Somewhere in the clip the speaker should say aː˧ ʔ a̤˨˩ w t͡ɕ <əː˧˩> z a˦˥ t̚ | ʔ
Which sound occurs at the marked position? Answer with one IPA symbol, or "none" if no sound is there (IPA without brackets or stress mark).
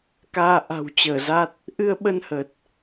əː˧˩